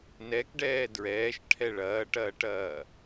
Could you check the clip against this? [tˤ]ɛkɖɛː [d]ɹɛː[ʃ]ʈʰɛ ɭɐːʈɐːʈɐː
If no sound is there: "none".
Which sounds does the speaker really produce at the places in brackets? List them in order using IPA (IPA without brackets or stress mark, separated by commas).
n, d, ʃ